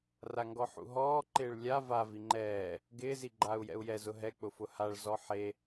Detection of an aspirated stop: absent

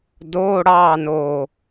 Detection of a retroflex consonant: present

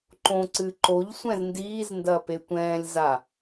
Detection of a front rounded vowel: absent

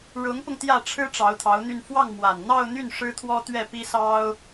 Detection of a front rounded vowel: present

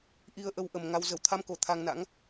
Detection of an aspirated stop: present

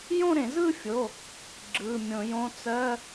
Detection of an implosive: absent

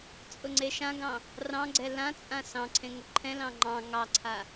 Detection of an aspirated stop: present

